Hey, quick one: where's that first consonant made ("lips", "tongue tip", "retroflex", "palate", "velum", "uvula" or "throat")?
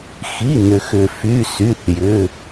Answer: velum